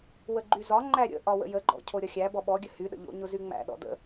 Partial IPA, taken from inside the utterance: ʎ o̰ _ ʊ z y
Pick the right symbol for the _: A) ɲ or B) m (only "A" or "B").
A